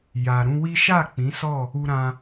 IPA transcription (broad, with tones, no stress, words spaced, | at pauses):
ja˨ ɾũ˧wi˦ ʃa˦˨ k͡pĩ˨˦sɔ˦˨ | u˧ɾã˧